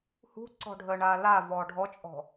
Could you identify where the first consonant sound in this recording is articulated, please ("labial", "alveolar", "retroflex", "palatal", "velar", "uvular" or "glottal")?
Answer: glottal